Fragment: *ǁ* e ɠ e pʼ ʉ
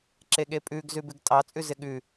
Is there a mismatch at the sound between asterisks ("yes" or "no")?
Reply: no